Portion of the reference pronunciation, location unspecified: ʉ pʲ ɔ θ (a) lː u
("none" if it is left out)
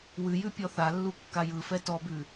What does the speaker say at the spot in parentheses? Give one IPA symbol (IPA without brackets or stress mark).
a